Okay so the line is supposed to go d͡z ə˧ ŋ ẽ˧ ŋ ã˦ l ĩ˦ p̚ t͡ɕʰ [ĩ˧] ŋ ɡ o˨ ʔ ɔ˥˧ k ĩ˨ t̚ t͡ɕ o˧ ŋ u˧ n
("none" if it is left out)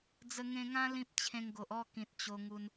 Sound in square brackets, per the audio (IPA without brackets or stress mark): ẽ˧